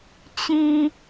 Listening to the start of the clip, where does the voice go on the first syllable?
high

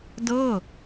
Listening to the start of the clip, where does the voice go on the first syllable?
falling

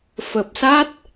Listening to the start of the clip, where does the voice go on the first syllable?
low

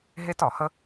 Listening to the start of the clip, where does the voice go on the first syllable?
high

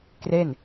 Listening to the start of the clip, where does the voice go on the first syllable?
falling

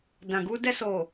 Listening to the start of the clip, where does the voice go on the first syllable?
low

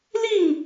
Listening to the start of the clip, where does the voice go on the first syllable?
falling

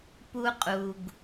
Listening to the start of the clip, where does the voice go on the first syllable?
high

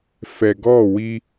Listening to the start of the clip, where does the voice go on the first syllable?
low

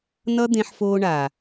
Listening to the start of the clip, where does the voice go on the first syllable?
high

